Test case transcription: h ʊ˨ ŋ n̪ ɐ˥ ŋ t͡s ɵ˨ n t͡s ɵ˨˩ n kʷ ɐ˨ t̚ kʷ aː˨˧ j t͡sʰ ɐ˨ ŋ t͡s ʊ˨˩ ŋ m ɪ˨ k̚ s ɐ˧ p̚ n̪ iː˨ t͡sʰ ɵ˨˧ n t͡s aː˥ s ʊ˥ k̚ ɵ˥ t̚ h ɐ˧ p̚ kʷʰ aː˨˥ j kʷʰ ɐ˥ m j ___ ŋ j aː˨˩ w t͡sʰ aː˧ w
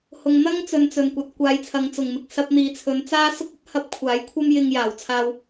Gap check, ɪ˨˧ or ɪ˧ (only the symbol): ɪ˧